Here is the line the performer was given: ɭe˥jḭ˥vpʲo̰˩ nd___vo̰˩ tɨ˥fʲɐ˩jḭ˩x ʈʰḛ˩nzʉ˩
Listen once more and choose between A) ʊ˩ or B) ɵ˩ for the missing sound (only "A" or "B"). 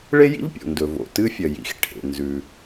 B